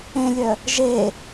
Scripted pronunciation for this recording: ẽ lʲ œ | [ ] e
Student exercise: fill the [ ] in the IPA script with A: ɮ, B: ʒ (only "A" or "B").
B